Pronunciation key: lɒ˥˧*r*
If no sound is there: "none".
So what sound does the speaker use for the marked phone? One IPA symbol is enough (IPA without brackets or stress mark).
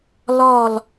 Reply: l